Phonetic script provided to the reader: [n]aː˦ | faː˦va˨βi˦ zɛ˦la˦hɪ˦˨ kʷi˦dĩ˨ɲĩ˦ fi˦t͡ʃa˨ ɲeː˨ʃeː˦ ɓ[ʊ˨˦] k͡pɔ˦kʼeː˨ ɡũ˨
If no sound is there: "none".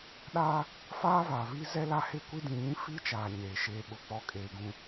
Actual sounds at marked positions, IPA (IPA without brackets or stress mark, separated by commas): ɗ, ʊ˦